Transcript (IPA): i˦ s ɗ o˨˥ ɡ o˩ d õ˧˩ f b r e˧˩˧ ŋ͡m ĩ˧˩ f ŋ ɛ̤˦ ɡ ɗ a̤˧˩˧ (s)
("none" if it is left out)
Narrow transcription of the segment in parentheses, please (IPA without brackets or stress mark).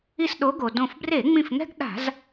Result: z